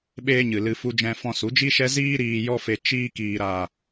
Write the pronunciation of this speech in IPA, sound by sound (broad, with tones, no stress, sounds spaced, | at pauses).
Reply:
ɓ eː˦ ɲ ɨ˨ l ɨ˧ f u˧ d͡ʒ ɛ̃˧ f ɔ̃˧ s u˨˦ d͡ʒ i˦ ʃ ɛ˦ z iː˦ ɾ iː˧ j ɔ˦ f e˧ t͡ʃ iː˧ k iː˨ ɾ aː˨